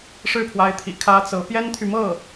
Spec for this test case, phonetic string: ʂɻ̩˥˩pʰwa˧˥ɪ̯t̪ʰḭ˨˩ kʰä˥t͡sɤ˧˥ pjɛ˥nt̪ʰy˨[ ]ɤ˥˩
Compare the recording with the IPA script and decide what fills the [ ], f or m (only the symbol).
m